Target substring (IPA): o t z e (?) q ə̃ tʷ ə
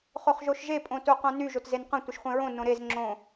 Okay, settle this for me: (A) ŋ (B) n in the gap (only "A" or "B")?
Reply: B